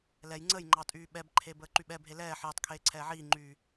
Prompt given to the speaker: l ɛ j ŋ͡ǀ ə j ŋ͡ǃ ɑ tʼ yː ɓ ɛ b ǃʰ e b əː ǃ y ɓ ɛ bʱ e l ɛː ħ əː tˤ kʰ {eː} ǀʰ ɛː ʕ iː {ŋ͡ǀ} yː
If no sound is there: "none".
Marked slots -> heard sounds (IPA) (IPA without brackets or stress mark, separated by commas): eː, ŋ͡ǃ